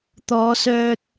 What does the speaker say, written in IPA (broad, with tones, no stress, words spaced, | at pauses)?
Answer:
t̪ɔː˨˧ sœː˨t̚